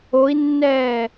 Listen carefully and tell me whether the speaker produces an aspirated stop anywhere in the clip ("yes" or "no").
no